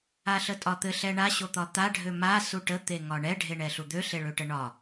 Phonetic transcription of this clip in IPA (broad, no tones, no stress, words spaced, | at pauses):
aɬətʼɒt̪ɘ ɬɛɳa ɕot̪ɒt̪a ɖʱøma suʈə t̪eŋɒɳɛ ɖʱeɳɛɬud̪ø ɬeɭøʈəɳɒ